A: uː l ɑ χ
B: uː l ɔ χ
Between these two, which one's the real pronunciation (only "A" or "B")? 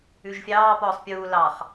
A